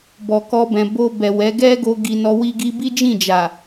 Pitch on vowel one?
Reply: low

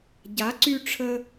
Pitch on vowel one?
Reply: rising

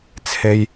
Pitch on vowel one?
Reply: high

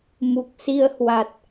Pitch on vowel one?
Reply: low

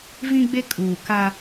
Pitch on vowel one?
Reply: high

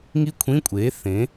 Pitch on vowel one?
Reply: falling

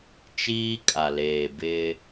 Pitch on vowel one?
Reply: high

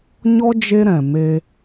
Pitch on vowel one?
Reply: high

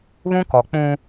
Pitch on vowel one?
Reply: high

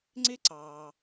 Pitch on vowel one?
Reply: high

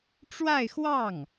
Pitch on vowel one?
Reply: falling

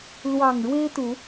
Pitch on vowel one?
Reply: low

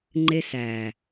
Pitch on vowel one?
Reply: high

